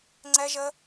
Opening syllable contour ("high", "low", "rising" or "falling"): high